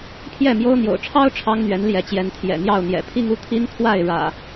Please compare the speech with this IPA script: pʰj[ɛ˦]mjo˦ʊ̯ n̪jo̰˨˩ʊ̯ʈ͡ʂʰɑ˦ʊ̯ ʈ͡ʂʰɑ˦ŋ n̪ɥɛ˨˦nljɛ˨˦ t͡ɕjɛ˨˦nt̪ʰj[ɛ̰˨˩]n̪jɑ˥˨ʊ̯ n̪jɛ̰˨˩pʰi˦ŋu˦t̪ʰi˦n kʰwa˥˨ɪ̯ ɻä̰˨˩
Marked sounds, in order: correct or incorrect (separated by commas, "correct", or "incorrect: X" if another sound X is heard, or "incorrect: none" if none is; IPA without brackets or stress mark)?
incorrect: ɛ˥˨, correct